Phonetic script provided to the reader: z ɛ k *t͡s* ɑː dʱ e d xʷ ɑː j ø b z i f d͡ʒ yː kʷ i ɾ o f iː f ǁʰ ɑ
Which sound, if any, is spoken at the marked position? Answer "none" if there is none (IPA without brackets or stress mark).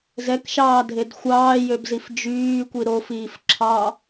ʃ